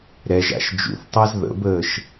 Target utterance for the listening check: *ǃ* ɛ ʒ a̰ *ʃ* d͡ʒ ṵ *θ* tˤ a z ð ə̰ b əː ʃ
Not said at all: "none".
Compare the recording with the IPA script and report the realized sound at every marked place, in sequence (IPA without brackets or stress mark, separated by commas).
ɾ, ʃ, θ